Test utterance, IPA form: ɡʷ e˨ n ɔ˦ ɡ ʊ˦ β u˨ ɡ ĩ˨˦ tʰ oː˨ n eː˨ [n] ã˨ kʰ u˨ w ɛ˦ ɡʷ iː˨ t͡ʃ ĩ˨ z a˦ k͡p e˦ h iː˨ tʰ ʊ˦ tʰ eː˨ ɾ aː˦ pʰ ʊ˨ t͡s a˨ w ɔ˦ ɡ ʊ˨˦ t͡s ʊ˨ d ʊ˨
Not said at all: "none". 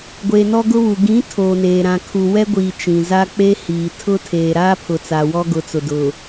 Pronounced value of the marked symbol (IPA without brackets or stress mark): ɾ